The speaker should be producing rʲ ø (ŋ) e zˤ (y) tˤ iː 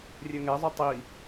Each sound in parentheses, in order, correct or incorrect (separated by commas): correct, correct